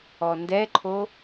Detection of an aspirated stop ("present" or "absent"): present